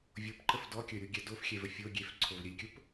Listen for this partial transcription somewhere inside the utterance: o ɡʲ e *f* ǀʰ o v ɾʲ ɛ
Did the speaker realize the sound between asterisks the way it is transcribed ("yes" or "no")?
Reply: yes